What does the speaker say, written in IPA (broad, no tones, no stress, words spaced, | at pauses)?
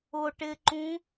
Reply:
ʊ ʈɪǃũ